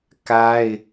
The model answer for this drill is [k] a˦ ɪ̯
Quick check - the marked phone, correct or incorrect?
correct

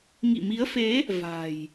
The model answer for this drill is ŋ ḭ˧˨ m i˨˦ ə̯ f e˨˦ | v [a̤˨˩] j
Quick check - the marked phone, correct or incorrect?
correct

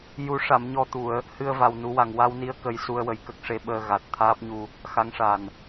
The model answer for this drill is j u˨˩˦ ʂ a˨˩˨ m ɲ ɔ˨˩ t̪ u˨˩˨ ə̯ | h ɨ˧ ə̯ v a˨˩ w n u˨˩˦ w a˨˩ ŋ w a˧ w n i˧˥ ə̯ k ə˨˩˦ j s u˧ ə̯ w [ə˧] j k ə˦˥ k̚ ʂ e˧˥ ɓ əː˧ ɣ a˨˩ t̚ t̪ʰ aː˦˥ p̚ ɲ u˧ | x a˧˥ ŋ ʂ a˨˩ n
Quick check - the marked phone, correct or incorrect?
incorrect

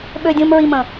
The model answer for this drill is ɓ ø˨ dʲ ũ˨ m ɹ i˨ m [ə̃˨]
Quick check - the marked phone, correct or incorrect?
correct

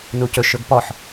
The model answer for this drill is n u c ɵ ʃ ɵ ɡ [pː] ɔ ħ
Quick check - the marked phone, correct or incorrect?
incorrect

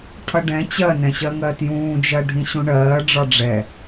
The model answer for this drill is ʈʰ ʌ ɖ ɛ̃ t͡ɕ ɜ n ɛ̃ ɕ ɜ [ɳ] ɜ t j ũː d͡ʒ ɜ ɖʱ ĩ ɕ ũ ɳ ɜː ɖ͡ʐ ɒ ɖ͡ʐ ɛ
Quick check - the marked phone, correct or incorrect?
incorrect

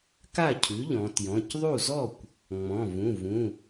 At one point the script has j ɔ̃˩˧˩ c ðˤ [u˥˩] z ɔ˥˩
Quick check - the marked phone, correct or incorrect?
correct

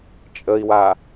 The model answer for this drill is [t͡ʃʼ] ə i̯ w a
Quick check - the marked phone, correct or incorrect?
correct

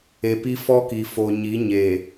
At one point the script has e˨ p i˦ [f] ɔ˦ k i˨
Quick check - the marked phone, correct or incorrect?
correct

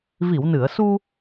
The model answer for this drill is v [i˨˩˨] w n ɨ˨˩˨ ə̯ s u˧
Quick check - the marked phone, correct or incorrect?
correct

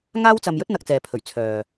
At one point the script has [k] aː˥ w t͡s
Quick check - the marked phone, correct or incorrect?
incorrect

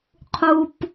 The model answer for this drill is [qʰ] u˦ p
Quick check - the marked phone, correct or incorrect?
correct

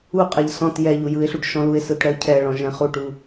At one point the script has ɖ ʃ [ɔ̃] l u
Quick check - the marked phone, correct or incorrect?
correct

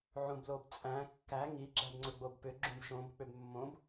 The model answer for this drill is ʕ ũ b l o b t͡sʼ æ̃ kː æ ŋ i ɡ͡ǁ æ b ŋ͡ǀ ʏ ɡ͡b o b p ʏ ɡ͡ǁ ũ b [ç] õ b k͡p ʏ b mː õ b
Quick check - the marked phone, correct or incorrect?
incorrect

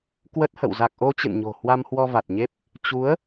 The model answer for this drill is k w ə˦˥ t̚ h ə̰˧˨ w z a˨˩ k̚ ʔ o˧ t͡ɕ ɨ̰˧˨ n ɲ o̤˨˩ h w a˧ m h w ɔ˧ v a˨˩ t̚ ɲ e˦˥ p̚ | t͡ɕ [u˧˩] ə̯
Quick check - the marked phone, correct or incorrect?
incorrect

